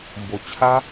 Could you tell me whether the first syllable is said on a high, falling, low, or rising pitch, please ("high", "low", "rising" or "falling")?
low